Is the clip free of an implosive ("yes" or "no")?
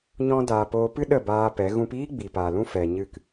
no